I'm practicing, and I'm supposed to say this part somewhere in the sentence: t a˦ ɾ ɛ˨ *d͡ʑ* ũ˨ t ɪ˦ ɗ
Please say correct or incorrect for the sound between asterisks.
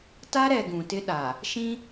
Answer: incorrect